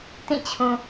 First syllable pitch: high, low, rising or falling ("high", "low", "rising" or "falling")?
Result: falling